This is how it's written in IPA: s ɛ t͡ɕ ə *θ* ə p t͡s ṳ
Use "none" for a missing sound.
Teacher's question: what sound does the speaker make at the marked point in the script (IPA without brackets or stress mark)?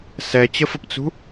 f